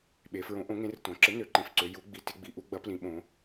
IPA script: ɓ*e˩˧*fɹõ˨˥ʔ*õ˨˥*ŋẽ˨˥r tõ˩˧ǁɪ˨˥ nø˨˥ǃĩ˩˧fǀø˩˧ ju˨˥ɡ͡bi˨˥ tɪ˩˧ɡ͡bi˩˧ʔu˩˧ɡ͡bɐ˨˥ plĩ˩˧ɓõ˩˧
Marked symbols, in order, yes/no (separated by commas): yes, yes